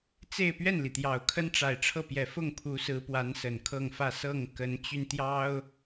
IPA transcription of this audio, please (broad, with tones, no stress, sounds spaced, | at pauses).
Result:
t͡s e˥˧ ɪ̯ p ɥ ɛ˥˩ n l i˩ t̪ j ɑ˨˩ ʊ̯ kʰ ə˥ n ʈ͡ʂ a˨˩ ɪ̯ ʈ͡ʂʰ ɤ˥˩ p j ɛ˨˩ f ʊ˥˩ ŋ pʰ u˧˥ s ɹ̩˧˥ p w a˧˥ n s ə˨˩ n kʰ ɤ˥˧ ŋ f ä˥˧ s ɤ˥˩ ŋ k ə˧˥ n t͡ɕ y˧ n t̪ j ɑ˥ ʊ̯